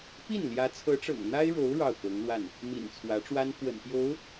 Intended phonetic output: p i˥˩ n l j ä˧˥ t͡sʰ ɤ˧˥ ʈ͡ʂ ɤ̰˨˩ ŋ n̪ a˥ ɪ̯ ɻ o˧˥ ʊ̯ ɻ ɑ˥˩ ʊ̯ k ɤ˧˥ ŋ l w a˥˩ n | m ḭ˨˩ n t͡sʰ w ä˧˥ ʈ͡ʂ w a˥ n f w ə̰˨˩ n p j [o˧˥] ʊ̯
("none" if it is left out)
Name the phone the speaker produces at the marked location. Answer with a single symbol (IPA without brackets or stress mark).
o˧˥